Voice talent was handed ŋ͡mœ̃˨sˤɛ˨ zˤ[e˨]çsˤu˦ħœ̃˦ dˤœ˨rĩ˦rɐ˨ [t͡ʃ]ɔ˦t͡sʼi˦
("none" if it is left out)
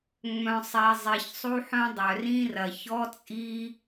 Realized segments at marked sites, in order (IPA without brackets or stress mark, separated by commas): i˨, ç